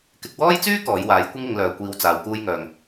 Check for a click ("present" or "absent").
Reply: absent